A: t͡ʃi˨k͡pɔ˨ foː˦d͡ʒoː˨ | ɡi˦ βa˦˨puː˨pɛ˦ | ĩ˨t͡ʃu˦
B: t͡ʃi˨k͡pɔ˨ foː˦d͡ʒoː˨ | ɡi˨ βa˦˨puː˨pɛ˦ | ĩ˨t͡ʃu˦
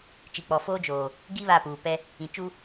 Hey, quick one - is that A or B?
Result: A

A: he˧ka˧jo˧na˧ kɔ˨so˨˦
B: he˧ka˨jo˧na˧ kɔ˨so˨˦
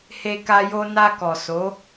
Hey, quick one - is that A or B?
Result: A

